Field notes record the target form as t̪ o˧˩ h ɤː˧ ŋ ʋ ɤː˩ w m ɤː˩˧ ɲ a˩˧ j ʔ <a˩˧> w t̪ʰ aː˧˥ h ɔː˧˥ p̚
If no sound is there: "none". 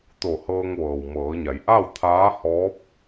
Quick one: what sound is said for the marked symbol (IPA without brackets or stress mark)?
a˥˨